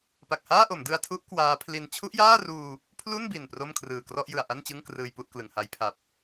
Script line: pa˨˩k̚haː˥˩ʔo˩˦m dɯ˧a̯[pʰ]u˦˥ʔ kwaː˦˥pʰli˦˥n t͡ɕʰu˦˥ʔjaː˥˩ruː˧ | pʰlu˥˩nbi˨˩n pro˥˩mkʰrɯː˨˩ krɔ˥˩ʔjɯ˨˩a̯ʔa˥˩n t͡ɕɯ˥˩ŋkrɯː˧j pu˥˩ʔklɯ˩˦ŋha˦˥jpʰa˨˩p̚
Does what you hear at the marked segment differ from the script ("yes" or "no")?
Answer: yes